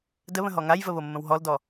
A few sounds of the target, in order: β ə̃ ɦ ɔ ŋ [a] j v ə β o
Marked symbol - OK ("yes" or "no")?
yes